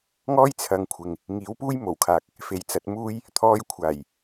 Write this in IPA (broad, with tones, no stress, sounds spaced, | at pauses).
ŋ ɔː˥ j t͡sʰ ɐ˨˧ ŋ kʷʰ ɪ˨ ŋ | ŋ iː˨˥ w p uː˥ j m o˨˩ w kʰ aː˨ k̚ | f e˨˩ j t͡s ɐ˨˥ t̚ m uː˥ j | t̪ʰ ɔː˧ j kʷʰ aː˨˩ j